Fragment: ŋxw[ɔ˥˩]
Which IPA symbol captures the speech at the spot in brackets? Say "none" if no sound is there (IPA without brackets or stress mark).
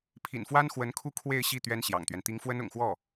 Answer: ɔ˥˩